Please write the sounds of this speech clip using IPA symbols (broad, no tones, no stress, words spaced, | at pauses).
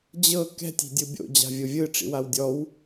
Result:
d͡ʑɤ kɛ̤tʲ i̤dʲɯbʲo̰ d͡ʑa̤vʲovʲɯ ʈ͡ʂḭwawdʲɔw